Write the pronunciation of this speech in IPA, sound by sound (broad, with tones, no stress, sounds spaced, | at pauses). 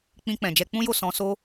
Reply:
k͡p ĩ˧ k͡p ɛ̃˨ d͡ʒ ɛ˧ k͡p ũ˦ j o˦˨ s ɔ̃˧ s o˦